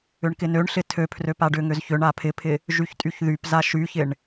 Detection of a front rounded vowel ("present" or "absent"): present